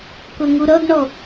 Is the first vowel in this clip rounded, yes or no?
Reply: yes